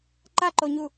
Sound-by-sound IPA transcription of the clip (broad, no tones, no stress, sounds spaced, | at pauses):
ǃ a ǃ o ɲ u